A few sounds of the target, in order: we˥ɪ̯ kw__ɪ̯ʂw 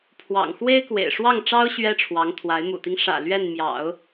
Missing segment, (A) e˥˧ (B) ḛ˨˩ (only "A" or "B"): B